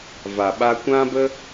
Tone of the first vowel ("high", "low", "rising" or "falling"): low